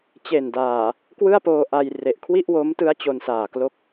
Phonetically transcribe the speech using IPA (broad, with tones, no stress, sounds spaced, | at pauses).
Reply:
t͡ɕ e˨˩ n d aː˨˩ | k w ɯ˥˩ a̯ p oː˧ ʔ a˧ j r e˨˩ ʔ kʰ w i˥˩ ʔ w o˦˥ m t ɯ˦˥ a̯ t͡ɕ o˧ n s aː˨˩ k l o˥˩ k̚